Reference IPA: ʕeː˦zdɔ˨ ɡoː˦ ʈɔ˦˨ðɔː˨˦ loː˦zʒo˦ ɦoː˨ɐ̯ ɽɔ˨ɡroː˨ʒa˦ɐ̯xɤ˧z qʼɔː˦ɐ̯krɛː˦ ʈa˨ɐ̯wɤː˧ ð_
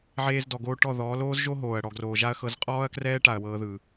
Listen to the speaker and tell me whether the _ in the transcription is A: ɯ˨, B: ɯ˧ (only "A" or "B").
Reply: A